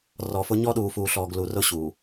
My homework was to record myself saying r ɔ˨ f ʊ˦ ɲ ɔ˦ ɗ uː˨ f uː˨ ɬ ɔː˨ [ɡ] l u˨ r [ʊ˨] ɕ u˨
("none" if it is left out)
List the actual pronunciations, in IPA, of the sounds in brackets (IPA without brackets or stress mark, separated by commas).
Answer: ɡ, ʊ˦˨